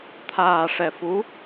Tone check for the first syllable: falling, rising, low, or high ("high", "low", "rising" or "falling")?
low